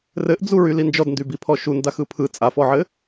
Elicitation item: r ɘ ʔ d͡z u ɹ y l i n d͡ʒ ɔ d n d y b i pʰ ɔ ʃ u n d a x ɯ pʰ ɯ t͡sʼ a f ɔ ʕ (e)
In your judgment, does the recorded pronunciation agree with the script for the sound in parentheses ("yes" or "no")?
no